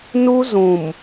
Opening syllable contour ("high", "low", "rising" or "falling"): high